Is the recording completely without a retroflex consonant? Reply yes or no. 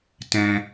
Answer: yes